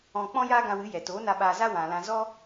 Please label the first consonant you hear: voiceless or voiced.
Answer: voiceless